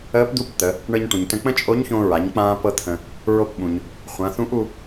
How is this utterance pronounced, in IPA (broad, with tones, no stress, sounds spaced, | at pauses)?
əː˧˥ p d̪ u˧˥ p t̪ ə˩˧ | ɳ ɤ˧ ɲ ʈ ũ˩ ɲ t ə̃˧ k͡p ə̃˥ t͡ʃʼ o˧˥ ɲ ç õ˧ ɹ a˩˧ ɲ k͡p ãː˥ p ɤ˥ t̪ʰ ə̃˧ | ɹ o˧ p ɓ ũ˩ ɲ | χʷ ã˩˧ θ ũ˧˥ ʔ u˧